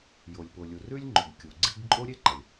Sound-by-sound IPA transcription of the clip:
j o˩ lʲ p o˩ lʲ u˩ r ʉ˥ lʲ ŋ͡ǃ ɵ˩ ɡ kʲ u˩ ɡ͡ǀ i˥ ɡ ǃʼ o˥ ɾʲ e˥ ǃ ɐ˩ lʲ

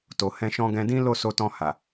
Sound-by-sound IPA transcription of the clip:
t o˨ h ɛ̃˧ ʃ ɔ̃˧ ɡ ɛ̃˧ d ĩ˦ l o˦˨ s o˧ t ɔ̃˧ h a˨

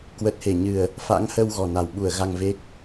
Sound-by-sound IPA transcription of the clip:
k w ə˨˩ t̚ h e˧˩ ɲ ɨ˨˩ ə̯ | f a̰˧˥ ŋ h ə˧ w ɣ ɔ˨˩ n a˨˩ w ɓ u˧˩ ə̯ ɣ a˧ ŋ v e˦˥ k̚

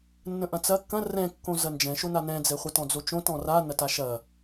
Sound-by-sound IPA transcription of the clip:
nː ə̃ ʔ ɐ̃ t͡s ɐ kː ɐ̃ r ɛ̃ kː õ z ɐ n d͡ʒ ɛ̃ ʃ o n a n ɛ̃ d͡z ɛ χʷ a t ɔ̃ d͡z o t͡ʃ õ t ɔ̃ r a n ɐ t a ʃ ɐ

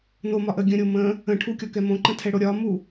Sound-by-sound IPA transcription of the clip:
n o m ɒ ʔ ə ɡʲ ə̃ ɾʲ o m ə̃ | ə̃ ʈʰ u kʲ ɔ k ɛ m õ ǃ ə̃ tʰ ɛ ɽ o ɾʲ ɒ m u

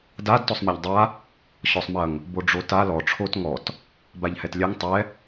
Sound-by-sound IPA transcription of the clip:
d a d t ɔ sˤ m ɛ ʎ dˤ a | ɕ ɔ sˤ m ɐ ŋ | b o ɖ͡ʐ o t a l ɔ ʈ͡ʂʰ o t ŋ ɔ t | b a ʎ h ɛ t lʲ ɛ ŋ tˤ ɛ

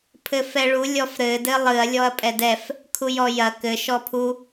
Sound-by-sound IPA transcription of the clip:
pʰ ɘ f ɛ ɭ u lʲ ɔ f ɾ ɘ d ɘ lˠ ɨ ɐ̯ lʲ ɔ ɐ̯ pʼ ɛ d ɛ f | kʰ u j ɔ j ɐ k ɘ ʃ ɔ pʰ u

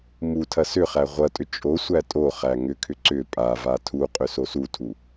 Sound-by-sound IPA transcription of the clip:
m u tʰ ɐ s ʏ χ æ ʁʷ ɐ tʼ ʏ t͡ʃʼ o sʷ æ tʼ o χ æ ŋ ʏ kʰ ʏ ǀ ʏ pʼ a v a tʰ u qʼ ʏ s o s u tʰ u

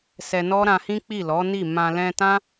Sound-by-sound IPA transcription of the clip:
s ɛ˧ n ɔ˦ ɾ ã˧ h ĩ˦ k͡p i˦˨ l ɔ˨˦ n i˦˨ m ã˧ l ɛ̃˧ t ã˦

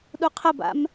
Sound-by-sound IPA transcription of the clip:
ɗ u qʰ ə b a̰ m

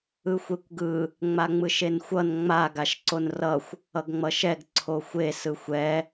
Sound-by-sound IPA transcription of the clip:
ɯ xʷ e kʷ ɡ ɯ | ŋ͡m a ŋ͡m ɯ ʃ e n xʷ ʌ n ŋ͡m a ɡ a ʃ ǀ o n r ʌ xʷ | ʌ ɡ ŋ͡m ʌ ʃ ɛ ɡ ǀʰ o xʷ e s ɯ xʷ ɛ

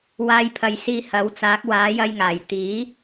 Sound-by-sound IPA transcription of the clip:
w aː˧ j pʰ ɐ˨ j s iː˧ h ɐ˨˥ w t͡s aː˨˥ k̚ w aː˨˥ j ɐ˧ j ŋ aː˨˩ j t̪ iː˨˥

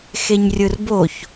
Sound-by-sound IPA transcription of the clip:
x e ɲ rʲ ɯ r b o ç

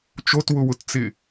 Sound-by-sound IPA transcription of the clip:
t͡ʃ o t w ʊ w ʊ t t͡s ɪ

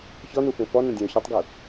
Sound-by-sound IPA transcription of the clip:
ç ɔ n u f ẽ f ɔ n ə̃ dʲ ɛ̃ ʊ̯ ç ʏ tˤ ɡ u

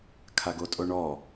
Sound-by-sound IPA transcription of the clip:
kʰ a ɡ o tʼ o ɳ ɔ

